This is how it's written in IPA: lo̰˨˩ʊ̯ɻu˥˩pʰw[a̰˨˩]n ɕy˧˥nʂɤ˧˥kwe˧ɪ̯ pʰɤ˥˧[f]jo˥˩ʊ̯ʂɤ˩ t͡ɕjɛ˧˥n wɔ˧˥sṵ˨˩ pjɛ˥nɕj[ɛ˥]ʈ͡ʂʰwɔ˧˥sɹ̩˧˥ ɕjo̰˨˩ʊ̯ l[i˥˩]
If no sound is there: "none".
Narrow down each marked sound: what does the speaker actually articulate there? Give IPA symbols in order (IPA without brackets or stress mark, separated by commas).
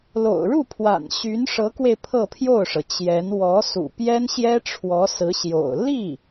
a̰˨˩, pʰ, ɛ˥, i˥˩